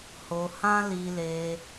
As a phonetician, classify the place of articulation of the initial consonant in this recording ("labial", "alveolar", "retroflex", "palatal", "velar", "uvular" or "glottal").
glottal